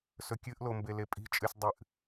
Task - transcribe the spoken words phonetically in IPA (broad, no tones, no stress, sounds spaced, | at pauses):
s ɵ kʲ ɨ ʔ l o m b e l e pʼ i̤ t͡ʃʼ ɨ sʲ dˤ ɨ ʔ